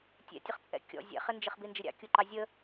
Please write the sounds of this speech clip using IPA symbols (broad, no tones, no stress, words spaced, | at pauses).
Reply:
tʲɛ̰tʲəχt͡sʼɛ̰ kʲɔ̰ zʲɛ̰χɪnd͡ʒɪχ bind͡ʒɪɾʲɑ̰ kʲuǃɑzʲə